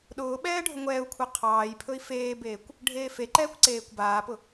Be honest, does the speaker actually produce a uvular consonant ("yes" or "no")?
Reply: yes